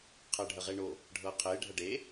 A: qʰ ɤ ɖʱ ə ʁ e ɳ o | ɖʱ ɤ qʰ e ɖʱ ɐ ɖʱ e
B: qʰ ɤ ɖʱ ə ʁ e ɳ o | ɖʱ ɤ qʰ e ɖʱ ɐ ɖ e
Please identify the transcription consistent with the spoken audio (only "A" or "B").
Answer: B